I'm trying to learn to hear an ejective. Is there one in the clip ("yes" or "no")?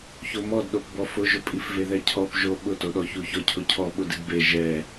yes